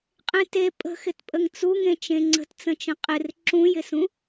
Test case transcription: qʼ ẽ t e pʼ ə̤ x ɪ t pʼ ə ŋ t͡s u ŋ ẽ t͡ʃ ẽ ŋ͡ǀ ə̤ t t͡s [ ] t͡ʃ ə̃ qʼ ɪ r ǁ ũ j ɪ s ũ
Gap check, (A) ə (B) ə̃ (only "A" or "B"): B